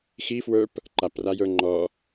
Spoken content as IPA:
x i f w ə˞ p | ǃ a p r a j ə˞ ŋ͡ǃ ɔ

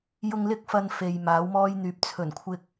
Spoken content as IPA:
j ʊ˧ ŋ l ɪ˥ k̚ f ɐ˧ n f e˨ j m aː˨˥ w m ɔː˥ j n̪ yː˨˥ p̚ t͡sʰ ɵ˨˩ n kʷʰ ɪ˧ k̚

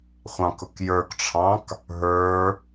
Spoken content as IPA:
χʷ ɑ̃ k ʊ k j ə˞ k ʈ͡ʂʰ ɑ̃ k | ɦ ə˞

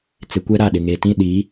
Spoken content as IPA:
t͡s ɪ˨ kʷ ɛ˦ ɾ a˦˨ ɗ ɪ˨ ŋ e˨ t ĩ˦ ɗ i˨˦

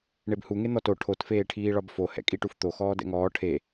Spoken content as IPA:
ɳ e b h u ŋ e n̪ ɔ t o ʈʰ o t f eː ʈʰ iː ɭ ɒ b f o h ɛ̰ kʼ i ʈ u f t̪ o x ɔː d ɛ̰ ŋ ɔː ʈʰ e

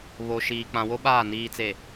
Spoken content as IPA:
β o˨ ʃ iː˨ k͡p ã˨ w o˦ ɓ aː˦˨ n iː˨ t͡s e˨

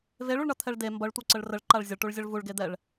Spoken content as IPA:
v e ɭ u ɭ ɳ ʌ t̪ʰ ɛ ɭ d e m b ʌ ɭ tʷ ʌ ǀ ə ɭ r ə ɭ ǃ a ɭ zʲ ə ɭ ʈ u ɭ zʲ ʌ ɭ v u ɭ ɡ e d̪ ɛ ɭ

